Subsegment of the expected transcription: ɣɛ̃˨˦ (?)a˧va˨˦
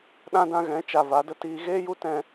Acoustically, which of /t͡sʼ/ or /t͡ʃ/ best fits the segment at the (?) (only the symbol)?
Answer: t͡ʃ